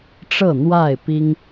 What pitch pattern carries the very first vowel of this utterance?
falling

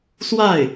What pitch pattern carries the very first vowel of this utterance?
falling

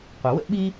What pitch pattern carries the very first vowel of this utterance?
low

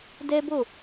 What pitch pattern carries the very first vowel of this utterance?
high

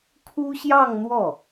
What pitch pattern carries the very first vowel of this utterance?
high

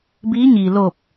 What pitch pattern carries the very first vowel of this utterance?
rising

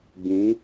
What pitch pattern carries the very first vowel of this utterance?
rising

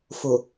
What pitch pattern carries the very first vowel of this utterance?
low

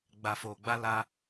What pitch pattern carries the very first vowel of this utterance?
low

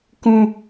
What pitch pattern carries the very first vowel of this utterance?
high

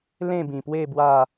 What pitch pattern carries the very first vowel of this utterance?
falling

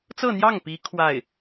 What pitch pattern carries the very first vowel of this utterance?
falling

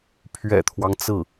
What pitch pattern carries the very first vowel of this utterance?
low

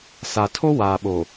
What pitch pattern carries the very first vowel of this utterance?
low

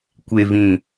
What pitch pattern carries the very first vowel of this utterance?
low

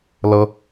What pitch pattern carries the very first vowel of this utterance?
high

